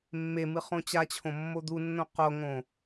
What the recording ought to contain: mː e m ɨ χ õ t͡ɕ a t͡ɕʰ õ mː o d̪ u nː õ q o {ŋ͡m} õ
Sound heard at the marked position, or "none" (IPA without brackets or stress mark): ŋ